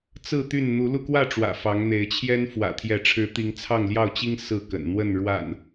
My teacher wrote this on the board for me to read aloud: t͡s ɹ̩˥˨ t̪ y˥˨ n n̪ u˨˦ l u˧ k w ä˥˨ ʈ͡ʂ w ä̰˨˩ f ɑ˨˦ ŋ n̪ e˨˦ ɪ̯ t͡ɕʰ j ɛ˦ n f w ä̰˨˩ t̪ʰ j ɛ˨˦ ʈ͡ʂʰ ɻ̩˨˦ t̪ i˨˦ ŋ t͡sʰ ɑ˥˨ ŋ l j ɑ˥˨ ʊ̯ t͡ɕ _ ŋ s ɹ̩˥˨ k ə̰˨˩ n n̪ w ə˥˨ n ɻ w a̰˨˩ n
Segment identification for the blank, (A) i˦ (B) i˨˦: A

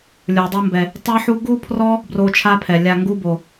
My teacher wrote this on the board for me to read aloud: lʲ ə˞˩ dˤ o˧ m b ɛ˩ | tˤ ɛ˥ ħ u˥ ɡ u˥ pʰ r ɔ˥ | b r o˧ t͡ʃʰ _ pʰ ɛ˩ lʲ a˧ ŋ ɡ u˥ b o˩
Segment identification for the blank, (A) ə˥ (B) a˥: B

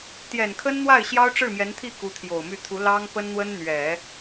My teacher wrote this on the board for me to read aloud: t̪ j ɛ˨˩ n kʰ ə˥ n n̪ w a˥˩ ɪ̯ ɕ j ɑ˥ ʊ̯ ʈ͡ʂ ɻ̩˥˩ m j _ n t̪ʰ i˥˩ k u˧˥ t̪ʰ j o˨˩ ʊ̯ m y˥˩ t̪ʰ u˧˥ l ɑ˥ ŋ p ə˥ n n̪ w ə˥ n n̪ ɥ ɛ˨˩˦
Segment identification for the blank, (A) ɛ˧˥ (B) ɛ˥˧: A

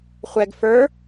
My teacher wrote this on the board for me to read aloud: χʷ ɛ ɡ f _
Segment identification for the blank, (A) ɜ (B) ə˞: B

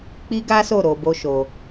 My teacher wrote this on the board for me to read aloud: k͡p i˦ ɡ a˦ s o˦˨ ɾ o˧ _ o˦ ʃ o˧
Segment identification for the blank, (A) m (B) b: B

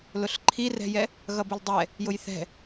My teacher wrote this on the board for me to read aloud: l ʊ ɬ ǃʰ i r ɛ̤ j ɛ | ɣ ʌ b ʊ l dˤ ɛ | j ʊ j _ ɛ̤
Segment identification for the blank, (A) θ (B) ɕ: A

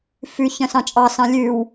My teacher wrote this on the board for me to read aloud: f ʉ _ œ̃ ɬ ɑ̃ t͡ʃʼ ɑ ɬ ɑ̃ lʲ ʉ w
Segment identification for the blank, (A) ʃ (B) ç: B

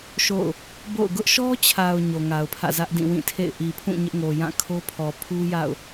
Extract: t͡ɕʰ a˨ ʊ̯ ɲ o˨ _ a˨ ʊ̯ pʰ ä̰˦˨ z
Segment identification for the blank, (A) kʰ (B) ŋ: B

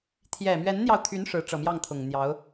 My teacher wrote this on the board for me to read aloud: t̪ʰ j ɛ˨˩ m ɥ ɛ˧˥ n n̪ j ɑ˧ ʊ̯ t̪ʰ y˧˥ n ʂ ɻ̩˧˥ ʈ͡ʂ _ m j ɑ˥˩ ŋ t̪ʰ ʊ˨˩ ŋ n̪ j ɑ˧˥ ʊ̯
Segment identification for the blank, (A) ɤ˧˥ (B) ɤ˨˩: B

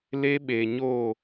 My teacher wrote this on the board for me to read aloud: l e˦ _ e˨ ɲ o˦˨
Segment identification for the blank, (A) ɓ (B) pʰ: A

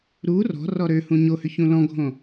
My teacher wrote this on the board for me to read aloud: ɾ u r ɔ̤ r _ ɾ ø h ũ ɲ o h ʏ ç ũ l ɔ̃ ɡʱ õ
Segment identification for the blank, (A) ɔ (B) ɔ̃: A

